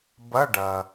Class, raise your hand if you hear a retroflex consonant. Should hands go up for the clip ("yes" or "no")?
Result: yes